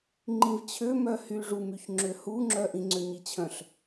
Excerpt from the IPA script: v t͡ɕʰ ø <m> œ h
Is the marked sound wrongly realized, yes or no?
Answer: no